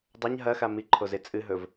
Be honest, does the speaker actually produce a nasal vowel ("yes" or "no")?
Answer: no